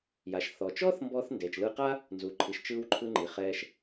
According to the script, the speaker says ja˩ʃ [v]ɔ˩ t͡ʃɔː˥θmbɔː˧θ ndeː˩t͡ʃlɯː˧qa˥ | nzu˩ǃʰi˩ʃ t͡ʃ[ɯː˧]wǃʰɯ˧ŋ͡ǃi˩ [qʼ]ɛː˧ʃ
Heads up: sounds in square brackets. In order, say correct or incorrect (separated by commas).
incorrect, correct, incorrect